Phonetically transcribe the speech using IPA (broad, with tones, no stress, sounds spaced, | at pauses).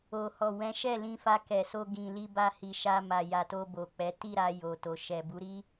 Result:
o˨ h ɔ˨ w ɛ̃˨˦ ʃ ɛ˦˨ l ĩ˧ f a˧ k ɛ˨ s o˧ ɡ ĩ˨ l i˧ b a˧ h i˨ ʃ a˧ m a˨ j a˨ t o˧ b o˨ k͡p ɛ˨˦ t i˦˨ ɾ a˧ j o˨ t o˨ ʃ ɛ˨ b u˨˦ ɾ i˦